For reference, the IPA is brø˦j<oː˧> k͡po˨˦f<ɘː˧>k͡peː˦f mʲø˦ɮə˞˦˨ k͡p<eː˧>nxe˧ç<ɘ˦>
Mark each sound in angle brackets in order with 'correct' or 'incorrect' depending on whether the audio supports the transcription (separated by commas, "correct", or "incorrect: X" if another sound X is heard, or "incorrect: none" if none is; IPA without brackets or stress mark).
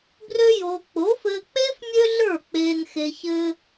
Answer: correct, correct, correct, correct